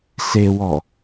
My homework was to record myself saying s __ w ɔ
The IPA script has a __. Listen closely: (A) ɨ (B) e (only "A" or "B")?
B